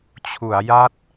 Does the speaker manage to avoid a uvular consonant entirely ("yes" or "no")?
yes